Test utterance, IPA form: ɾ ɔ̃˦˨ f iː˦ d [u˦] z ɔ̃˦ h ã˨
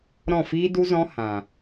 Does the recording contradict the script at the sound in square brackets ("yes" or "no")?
no